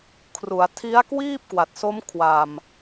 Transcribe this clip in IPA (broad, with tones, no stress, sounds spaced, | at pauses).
kʰ r u˩˦ a̯ tʰ i˦˥ a̯ k w iː˥˩ p̚ k w a˨˩ t̚ s o˦˥ m kʰ w a˨˩ m